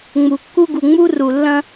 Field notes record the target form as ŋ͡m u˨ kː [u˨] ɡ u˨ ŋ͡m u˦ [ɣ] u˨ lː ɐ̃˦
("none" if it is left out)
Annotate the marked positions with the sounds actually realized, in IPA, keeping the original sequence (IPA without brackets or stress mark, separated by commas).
u˦, r